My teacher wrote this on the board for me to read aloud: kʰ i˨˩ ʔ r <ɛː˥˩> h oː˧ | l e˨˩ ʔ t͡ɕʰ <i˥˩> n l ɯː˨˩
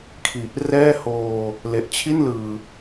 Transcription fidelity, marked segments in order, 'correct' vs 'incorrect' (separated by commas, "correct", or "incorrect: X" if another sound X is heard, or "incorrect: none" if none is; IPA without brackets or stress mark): correct, correct